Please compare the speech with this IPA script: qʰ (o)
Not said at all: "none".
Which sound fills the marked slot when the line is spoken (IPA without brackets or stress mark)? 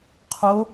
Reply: o